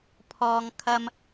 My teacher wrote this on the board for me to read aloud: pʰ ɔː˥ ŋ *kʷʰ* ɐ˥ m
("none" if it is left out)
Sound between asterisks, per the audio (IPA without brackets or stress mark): kʰ